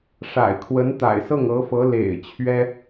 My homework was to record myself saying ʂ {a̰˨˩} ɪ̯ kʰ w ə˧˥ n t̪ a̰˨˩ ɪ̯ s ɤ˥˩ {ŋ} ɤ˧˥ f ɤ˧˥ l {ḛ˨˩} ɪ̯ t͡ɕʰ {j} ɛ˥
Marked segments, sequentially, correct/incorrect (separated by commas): correct, correct, correct, incorrect